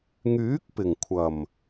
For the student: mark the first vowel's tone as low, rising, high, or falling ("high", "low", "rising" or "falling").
rising